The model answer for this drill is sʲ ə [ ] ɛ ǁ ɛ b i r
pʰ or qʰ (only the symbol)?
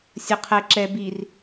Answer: qʰ